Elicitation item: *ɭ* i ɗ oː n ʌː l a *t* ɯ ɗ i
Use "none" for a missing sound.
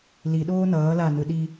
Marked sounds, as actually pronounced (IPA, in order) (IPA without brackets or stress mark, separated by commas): l, n